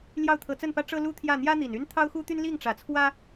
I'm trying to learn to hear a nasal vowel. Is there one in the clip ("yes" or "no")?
no